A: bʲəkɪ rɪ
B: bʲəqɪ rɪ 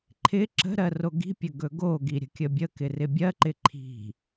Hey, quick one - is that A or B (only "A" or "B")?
A